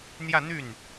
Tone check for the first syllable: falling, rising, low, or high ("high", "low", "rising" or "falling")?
falling